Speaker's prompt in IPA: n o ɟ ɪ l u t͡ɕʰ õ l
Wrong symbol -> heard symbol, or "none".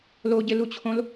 n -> l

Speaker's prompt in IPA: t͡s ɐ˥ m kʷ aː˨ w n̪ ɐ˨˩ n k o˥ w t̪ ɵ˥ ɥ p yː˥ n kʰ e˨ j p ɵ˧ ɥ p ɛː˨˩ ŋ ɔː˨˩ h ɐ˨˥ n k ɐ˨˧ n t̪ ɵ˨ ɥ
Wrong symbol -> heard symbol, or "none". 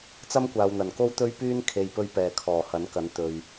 ŋ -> kʰ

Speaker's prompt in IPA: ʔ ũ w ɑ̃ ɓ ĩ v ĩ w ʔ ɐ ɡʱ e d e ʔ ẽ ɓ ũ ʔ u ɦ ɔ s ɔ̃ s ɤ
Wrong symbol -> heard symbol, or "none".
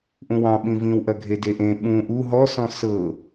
none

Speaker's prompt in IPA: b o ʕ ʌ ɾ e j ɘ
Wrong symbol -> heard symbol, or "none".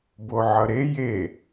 ɘ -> e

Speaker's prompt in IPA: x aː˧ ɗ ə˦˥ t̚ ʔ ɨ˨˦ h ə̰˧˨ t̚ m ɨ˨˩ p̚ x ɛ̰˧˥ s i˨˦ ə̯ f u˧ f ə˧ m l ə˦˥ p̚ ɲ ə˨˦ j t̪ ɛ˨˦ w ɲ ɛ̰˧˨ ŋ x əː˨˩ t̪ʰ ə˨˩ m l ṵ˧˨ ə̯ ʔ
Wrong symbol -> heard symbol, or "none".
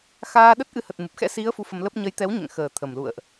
ə̰˧˨ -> ə˨˩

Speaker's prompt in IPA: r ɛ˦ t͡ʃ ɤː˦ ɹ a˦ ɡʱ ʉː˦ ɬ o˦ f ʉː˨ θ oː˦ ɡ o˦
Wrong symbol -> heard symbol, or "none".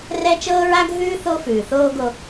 ɬ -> θ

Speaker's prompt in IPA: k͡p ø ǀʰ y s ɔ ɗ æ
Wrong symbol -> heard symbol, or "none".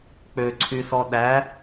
none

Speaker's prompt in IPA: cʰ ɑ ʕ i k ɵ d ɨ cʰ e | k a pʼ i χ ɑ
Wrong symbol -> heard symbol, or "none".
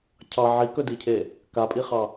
ɨ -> i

